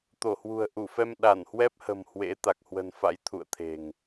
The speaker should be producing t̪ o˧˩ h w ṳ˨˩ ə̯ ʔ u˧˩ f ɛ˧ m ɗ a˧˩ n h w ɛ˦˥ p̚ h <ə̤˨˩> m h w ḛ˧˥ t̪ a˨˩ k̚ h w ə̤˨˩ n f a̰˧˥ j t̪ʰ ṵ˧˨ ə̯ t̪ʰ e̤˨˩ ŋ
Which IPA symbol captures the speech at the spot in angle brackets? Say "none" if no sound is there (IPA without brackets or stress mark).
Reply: ə̤˨˩